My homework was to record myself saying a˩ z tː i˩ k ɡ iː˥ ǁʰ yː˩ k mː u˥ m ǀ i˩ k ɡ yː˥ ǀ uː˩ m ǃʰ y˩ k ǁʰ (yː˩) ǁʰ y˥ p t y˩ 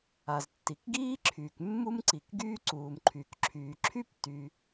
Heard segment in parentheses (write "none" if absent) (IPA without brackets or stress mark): yː˩